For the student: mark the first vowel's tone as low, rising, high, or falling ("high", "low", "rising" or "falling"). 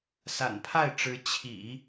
low